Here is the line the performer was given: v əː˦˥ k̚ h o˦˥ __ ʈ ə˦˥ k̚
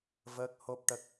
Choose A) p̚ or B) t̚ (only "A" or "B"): A